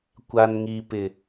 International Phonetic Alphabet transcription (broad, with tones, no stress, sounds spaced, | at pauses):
kʷ a˨ n ŋ i˨ p ɪ˨